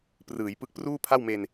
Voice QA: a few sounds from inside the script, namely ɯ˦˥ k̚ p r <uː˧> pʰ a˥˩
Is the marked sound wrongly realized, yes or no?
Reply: yes